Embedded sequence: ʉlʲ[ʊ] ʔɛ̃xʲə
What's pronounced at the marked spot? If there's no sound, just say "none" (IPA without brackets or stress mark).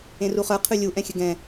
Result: u